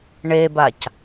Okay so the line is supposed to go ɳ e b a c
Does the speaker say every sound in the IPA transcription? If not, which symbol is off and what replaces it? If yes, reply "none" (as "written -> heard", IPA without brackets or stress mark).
none